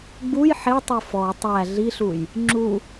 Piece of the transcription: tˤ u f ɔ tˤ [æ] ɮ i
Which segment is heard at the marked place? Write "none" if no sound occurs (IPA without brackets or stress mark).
æ